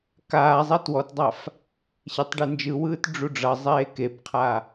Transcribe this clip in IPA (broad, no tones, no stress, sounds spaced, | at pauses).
k aː zˤ ɛ t w ɔ t dˤ a f | ɕ e tˤ ɖ e n d͡ʒ ɯ w ɯː t ɖ͡ʐ u ɖ͡ʐ ʌ zˤ eː k e b qʰ a